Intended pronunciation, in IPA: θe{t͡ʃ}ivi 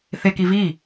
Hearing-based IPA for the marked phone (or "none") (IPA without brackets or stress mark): k